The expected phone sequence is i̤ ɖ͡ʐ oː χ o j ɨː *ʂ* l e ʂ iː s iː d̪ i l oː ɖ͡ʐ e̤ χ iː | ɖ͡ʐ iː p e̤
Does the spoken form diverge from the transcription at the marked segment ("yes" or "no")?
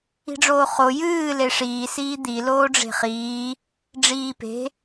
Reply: yes